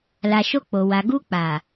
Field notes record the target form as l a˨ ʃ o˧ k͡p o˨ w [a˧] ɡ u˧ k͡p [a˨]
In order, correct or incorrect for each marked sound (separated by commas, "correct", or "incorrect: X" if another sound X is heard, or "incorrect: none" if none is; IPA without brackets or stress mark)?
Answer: incorrect: a˨, correct